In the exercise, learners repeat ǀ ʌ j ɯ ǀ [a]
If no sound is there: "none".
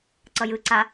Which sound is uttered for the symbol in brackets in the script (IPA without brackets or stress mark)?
a